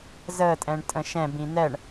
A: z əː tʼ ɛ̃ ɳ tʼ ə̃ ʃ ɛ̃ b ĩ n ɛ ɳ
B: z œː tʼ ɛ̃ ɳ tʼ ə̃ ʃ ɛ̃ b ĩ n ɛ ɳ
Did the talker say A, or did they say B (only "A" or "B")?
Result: A